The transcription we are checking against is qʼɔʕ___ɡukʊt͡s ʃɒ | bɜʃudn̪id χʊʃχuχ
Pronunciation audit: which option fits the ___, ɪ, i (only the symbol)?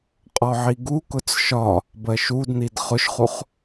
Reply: i